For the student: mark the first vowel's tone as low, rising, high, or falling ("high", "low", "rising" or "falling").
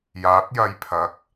rising